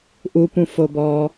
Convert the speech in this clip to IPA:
ʔ u p ũ f o b ɔː

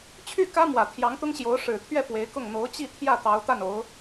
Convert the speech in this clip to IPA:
t͡ɕʰ y˥˩ k ä˥ m w ä˨˩ t̪ʰ j ɑ˧˥ ŋ t̪ ʊ˥ ŋ ɕ j o˧˥ ʊ̯ ʂ ɻ̩˨˩ t̪ʰ ɥ ɛ˥˩ p w e˧˥ ɪ̯ k ʊ˥˩ ŋ n̪ o˧˥ ʊ̯ t͡ɕ i˥˧ t̪ʰ j ä˥˩ t̪ ɑ˧˥ ʊ̯ t̪ a˥˩ n o˧˥ ʊ̯

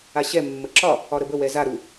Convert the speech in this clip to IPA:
a ɕ ɛ mː ə ǁ ɒ | ɒ ɾ ə b ə w ɛ z a ɾ u

